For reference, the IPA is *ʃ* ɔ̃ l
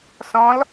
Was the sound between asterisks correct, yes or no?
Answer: no